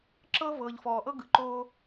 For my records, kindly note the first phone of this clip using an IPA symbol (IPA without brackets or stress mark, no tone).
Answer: ǁ